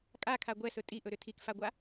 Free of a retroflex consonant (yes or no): yes